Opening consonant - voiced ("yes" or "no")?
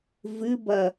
yes